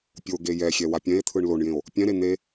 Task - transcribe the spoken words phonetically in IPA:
pʲ o ɡ e j ɛ xʲ ɛ w a pʲ ɛ̃ e̯ t̪ʰ ɯ ɳ l o ɳ j ẽ o̯ | pʲ ɛ̃ ɾ e n̪ e

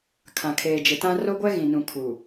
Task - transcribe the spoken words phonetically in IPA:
kʰ ã˨ kʰ eː˨ d͡ʒ ɪ˨ t ã˦ r o˦ ɡʷ ɛ˦ ɣ ĩ˨ n ũ˨ kʰ u˨

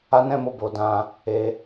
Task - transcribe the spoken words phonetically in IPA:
a˦ n ɛ̃˦ m o˧ b o˧ d ã˧ | e˧

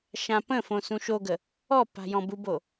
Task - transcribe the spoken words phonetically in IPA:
ʃ ã p ə̃ f õ s ũ ʃ o ɡ ə | ɔ p a̤ j ɔ̃ b u b o

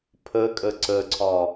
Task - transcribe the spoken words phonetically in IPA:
pʰ ə kʼ ə ǀ ə ǀʰ ɒ

